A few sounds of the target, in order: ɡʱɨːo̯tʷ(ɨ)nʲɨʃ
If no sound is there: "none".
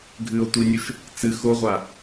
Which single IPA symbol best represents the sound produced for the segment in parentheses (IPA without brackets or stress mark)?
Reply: i